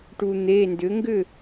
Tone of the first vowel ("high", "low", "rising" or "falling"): low